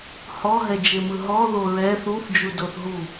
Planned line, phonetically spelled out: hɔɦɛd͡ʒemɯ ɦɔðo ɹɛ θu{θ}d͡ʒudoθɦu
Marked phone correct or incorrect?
correct